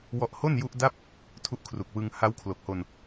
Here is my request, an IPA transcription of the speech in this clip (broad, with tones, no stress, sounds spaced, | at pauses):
w ɔ˦˥ ʔ h o˥˩ n j u˦˥ ʔ d a˥˩ p̚ | tʰ u˦˥ ʔ kʰ r u˨˩ k̚ w ɯ˧ ŋ h a˦˥ w kʰ l o˨˩ k̚ h o˧ n